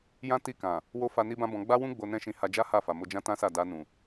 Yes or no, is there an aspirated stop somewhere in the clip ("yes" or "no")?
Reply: no